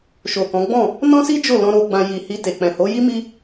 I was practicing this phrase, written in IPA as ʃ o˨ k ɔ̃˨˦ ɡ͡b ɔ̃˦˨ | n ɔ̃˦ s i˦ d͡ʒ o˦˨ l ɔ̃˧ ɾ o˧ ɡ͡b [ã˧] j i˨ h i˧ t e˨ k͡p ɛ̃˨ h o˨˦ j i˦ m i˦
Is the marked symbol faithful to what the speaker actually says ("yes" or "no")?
yes